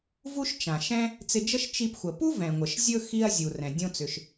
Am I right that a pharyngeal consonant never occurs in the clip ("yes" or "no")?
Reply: yes